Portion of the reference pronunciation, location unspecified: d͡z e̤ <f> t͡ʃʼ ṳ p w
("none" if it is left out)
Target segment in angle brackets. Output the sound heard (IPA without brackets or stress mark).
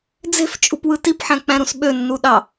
f